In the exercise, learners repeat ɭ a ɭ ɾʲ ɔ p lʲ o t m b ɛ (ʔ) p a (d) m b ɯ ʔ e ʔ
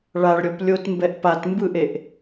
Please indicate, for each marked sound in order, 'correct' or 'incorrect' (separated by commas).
correct, incorrect